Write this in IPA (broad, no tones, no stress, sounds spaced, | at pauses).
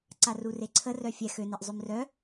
ǀ a r u r e ǀʰ ə r œ fʲ ɛ x ø n e ʔ zˤ ø m r œ